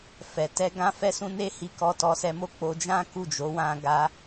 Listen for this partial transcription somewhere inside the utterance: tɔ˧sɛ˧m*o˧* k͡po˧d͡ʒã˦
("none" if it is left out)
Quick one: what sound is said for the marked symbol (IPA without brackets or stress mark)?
o˦